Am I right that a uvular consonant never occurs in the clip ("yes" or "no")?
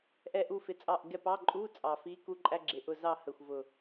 yes